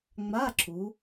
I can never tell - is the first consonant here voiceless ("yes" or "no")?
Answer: no